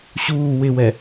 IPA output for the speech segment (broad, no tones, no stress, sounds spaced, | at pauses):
ɕ uː w ɪ w ɛ